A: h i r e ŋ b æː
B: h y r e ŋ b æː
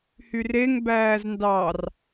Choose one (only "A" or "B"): B